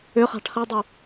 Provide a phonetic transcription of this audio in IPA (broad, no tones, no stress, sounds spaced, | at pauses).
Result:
ʏ χ a̤ ʈʰ ɐ dˤ u